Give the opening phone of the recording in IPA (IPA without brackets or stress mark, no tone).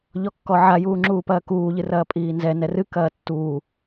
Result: ʎ